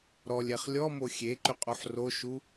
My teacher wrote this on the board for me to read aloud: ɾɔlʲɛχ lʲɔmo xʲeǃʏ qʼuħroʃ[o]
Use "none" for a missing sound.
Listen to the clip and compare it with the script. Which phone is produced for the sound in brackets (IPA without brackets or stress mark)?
u